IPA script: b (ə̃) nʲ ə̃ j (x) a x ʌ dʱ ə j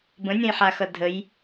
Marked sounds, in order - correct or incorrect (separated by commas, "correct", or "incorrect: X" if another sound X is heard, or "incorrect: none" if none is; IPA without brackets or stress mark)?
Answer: correct, incorrect: ħ